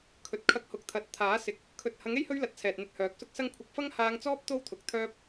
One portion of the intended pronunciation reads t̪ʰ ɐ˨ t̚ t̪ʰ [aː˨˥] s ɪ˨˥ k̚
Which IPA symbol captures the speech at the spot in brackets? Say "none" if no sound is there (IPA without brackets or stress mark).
aː˨˥